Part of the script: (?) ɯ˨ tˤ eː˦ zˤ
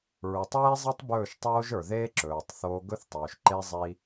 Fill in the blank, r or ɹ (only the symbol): ɹ